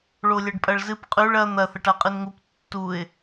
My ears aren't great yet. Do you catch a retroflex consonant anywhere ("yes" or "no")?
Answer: yes